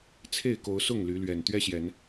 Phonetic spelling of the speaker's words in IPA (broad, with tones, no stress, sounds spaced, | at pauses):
t͡sʰ e˥˨ ɪ̯ k o˨˦ ʊ̯ s ʊ˥˨ ŋ l y˨˦ l ɥ ɛ˨˩ n t̪ ɥ ɛ˦ ɕ j ɛ˨˦ n